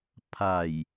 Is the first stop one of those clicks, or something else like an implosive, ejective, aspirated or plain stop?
aspirated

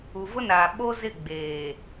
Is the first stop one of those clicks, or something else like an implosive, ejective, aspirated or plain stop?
implosive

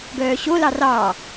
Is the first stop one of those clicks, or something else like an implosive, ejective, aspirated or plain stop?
plain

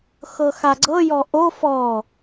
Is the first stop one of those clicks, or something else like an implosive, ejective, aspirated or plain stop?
click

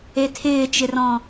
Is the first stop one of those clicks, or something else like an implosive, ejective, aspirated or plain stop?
aspirated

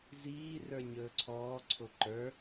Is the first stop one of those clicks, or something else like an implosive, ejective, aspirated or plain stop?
click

